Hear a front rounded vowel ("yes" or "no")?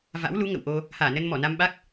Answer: no